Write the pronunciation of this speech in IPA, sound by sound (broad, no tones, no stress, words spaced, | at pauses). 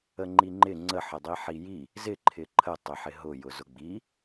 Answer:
əŋ͡ǃiŋ͡ǃɪ ŋ͡ǀə ħədˤiħiji | zɪ ǃʰɪǃʰə tˤɪħɪɦʊ jʊzʊɡ͡bi